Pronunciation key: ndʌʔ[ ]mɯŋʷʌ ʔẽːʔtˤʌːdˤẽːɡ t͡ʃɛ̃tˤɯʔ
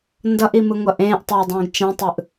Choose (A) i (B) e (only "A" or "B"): A